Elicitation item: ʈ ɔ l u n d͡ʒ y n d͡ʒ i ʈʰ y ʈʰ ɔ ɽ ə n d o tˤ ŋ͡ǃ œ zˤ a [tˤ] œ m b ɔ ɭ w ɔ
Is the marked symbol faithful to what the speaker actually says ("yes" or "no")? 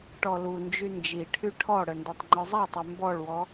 yes